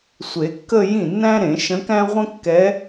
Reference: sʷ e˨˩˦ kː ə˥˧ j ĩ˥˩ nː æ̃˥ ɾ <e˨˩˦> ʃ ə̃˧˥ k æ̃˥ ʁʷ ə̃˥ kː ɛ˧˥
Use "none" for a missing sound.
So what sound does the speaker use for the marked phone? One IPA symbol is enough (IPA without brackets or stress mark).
ẽ˨˩˦